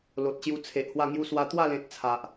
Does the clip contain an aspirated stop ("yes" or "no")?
yes